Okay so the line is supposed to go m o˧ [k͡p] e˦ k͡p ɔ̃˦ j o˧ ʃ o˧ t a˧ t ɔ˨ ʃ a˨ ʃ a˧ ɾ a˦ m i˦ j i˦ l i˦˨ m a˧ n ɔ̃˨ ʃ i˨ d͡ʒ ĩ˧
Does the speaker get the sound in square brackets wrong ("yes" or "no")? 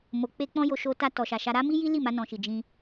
no